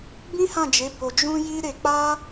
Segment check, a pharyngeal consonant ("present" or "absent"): absent